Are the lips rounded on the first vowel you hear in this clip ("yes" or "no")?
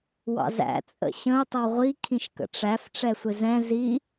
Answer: no